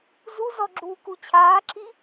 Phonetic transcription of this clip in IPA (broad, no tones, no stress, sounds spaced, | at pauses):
z u z ɔ ɡ͡ǁ uː k u t͡ɕʰ aː ǁʰ i